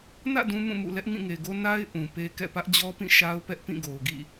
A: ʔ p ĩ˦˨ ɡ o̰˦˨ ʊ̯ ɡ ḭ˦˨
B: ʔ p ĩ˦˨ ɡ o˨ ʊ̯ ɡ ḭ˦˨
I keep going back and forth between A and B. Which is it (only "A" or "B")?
B